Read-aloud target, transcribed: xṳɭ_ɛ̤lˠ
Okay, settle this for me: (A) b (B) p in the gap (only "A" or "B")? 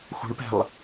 B